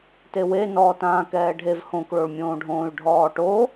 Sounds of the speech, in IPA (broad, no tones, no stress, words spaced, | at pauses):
tewe nɔːtãːkɛːɖʱev hõkɭoɭmʲõːɖʱõːy̯ ɖʱɔːʈo